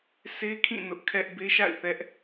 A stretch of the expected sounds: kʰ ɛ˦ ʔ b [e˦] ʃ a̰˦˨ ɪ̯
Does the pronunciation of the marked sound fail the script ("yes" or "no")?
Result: no